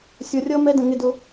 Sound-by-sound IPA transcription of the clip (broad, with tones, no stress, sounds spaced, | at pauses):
sʲ ʌ˨˦ rʲ ʌ˦ m ɛ˦ d ə̃˨ ŋ ɪ˦˨ d ʊ˧